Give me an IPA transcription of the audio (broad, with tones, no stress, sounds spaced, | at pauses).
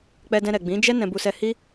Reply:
k͡p ɛ˧ d ɛ̃˧ ɾ ɛ˨ ɡ͡b ĩ˨˦ d͡ʒ ɛ˦ n ɛ̃˧ b u˧ s ɛ˧ h i˦